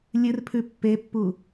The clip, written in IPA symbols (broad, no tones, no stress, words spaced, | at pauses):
lʲɨrpʰʉ pːepːu